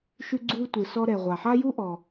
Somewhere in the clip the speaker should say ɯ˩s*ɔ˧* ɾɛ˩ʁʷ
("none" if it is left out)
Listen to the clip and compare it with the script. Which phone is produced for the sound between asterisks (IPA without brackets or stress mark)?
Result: ɔ˧